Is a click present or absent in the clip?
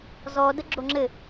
present